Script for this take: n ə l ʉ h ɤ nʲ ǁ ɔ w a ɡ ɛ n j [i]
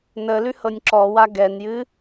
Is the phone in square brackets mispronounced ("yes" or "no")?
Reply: yes